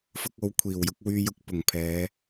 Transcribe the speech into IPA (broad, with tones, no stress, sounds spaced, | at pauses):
f ʊ˧ k̚ o˨˧ w kʷʰ iː˨˩ w j ʊ˧ k̚ w yː˥ j ʊ˥ k̚ p ʊ˨˩ ŋ pʰ ɛː˨˧